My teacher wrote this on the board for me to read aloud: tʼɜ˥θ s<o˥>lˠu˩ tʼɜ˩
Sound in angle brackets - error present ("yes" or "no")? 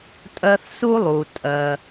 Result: yes